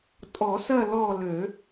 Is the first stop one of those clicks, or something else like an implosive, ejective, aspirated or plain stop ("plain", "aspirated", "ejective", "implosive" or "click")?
ejective